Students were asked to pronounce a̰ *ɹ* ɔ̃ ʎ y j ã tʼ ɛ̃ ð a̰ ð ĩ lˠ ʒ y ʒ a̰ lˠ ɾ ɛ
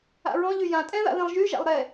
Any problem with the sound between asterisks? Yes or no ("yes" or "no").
no